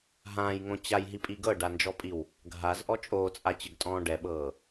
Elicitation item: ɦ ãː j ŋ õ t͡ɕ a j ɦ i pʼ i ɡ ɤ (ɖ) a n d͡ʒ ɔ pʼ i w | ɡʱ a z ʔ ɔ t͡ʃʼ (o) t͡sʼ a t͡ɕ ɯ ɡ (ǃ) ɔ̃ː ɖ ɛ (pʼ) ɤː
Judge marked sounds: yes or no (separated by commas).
yes, no, no, no